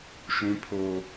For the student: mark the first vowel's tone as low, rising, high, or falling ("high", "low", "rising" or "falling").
high